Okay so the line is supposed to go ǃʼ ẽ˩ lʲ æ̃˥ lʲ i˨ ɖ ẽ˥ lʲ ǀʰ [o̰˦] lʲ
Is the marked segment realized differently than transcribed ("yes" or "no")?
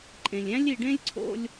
yes